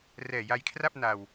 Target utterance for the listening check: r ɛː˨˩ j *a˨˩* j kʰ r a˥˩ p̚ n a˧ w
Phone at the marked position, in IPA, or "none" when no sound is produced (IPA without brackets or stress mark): a˧